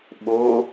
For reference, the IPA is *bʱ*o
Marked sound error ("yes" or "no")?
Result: yes